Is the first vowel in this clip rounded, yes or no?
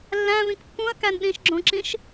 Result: no